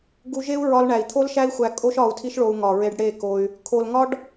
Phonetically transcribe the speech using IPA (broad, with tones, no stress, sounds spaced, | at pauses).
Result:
ɡ u˧ ʒ e˦ u̯ ɹ ɒ˧ l ɳ æ˨ i̯ t̪ʰ o˦ l ʃ æ˦ i̯ xʷ æ˧ kʼ o˦ ʃ ɒ˧ u̯ tʰ i˦ ʃ ɭ o˧ u̯ ŋ ɒ˨ ɹ e˧ ɖ ɽ e˦˨ k o˧ y̯ | kʰ o˨ l ŋ ɒ˦ ɖ